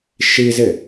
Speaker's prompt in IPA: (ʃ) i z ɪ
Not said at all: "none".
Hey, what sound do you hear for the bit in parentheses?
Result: ʃ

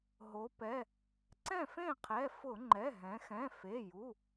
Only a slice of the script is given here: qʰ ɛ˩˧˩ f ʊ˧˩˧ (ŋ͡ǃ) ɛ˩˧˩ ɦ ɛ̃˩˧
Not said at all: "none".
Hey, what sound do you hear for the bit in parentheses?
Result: ŋ͡ǃ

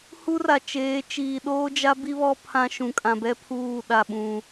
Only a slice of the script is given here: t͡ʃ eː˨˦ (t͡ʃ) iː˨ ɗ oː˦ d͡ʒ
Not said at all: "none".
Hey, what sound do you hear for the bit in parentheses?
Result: t͡ʃ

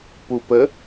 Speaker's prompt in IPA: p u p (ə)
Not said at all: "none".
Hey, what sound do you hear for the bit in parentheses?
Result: ə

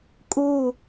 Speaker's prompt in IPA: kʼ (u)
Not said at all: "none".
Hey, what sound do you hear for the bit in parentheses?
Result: u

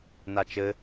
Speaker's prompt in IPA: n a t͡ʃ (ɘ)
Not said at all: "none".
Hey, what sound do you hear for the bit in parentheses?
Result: ɘ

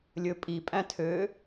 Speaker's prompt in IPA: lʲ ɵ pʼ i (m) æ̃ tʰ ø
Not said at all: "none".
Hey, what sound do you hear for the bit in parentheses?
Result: pʼ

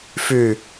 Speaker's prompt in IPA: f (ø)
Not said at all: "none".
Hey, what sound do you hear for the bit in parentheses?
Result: ʉ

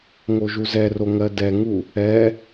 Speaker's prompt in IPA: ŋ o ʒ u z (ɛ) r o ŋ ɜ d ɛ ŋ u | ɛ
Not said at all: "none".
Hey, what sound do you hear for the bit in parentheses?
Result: ɛ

